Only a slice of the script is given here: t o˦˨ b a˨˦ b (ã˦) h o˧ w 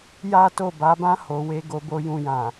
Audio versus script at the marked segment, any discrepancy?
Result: no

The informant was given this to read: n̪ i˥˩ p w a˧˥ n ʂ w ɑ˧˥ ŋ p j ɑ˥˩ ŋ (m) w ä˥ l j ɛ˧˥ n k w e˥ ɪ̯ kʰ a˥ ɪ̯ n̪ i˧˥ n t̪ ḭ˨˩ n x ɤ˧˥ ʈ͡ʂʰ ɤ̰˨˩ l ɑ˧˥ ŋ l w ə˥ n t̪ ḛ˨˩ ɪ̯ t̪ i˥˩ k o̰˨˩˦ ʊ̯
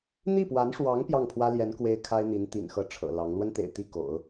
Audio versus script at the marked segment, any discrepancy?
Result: yes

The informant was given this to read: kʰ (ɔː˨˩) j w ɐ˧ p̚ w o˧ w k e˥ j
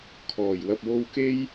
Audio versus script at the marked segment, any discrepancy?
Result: no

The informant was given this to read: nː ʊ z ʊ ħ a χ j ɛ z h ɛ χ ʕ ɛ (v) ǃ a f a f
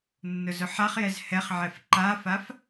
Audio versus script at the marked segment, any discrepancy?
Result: yes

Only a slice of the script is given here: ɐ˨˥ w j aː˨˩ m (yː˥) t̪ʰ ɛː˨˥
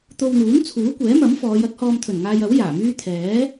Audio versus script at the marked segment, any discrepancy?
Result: no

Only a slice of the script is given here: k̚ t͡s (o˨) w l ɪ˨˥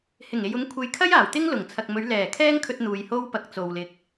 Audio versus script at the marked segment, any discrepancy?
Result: no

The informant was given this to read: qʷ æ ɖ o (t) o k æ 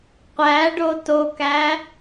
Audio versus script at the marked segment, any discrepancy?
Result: no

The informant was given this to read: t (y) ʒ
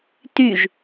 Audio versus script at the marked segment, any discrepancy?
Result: no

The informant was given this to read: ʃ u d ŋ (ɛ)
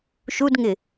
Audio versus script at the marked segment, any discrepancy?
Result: yes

